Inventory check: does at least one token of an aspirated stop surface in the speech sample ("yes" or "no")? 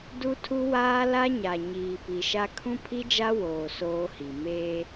yes